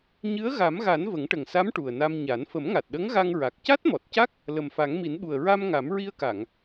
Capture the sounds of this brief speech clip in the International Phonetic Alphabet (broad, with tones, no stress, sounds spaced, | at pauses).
ɲ ɨ˧˥ ə̯ ɣ a˨˩˦ m ɣ a˨˩˦ n v ə˨˩˦ ŋ ʈ ə˨˩ ŋ s a˧˥ m ʈ u˨˩ ə̯ n a˧ m ɲ a˨˩˦ n f ə˨˩˦ m ŋ a˨˩ t̚ ɗ ə˧˥ ŋ ɣ a˧ ŋ ɹ a˨˩ k̚ c a˦˥ t̚ m ɔ˨˩ t̚ c a˦˥ k̚ | l ə˨˩ m f a˨˩˦ ŋ m i˨˩˦ n ɓ u˨˩ ə̯ ɹ a˧ m ŋ a˨˩˦ m ɹ i˧ ə̯ k a˨˩˨ ŋ